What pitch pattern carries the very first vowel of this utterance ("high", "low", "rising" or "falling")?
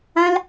high